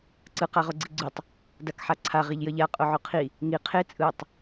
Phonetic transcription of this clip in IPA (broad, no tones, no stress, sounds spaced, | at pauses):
ǀ ɯ q a ʁ o ɡ͡ǀ i ɡ͡ǀ u tˤ | d a k ħ a ǀʰ a ʁ i ʎ j ʌ ʎ a qʼ o ʕ o qʰ i | ŋ i qʰ e t͡sʼ ɯ tˤ